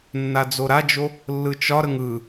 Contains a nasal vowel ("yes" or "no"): no